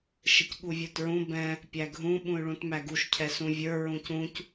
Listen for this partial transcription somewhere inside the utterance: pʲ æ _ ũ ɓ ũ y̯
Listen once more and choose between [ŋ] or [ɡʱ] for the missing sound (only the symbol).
ɡʱ